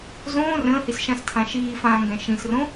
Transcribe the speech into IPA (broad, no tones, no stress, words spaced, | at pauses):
zõː rə̃ːhisʃãstʰã ʃiːfãːŋɡɛ̃ ʃĩsrõ